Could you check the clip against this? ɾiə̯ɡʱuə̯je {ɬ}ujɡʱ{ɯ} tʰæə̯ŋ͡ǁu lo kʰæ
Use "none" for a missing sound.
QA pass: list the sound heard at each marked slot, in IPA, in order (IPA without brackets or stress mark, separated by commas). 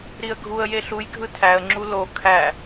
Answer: ɬ, ɯ